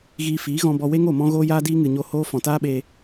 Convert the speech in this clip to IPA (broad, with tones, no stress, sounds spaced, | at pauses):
ɣ iː˧ f iː˨˦ ɣ ɔ̃˧ b ɔ˧ w e˦ ŋ o˦˨ m ɔ̃˦ ɣ oː˦ j aː˦ d iː˦ ŋ ɨ˨ ɲ o˧ h oː˦ f ɔ̃˨ t aː˦ ɓ eː˧